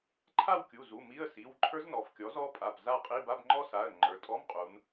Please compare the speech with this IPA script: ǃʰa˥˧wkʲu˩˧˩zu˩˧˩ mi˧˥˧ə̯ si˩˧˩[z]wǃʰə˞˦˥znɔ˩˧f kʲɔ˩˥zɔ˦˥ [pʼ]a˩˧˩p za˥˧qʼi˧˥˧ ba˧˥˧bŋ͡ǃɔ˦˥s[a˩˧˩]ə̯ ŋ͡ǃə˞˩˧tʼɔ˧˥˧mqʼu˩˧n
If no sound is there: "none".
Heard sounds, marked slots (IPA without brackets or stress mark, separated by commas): none, pʼ, a˩˧˩